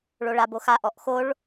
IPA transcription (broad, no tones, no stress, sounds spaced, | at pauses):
ɭ o ɭ a b o x a ʔ ɔ ʔ x o ɭ